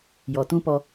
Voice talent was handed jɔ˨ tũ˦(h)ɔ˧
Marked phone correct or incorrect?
incorrect